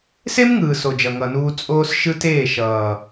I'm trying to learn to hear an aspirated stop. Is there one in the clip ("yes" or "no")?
no